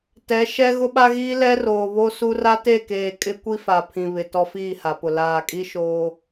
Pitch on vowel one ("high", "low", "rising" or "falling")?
rising